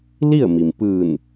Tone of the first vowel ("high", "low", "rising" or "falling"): falling